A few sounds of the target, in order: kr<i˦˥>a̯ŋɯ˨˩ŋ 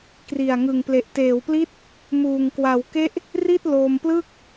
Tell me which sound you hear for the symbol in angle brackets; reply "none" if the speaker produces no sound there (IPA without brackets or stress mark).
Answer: i˨˩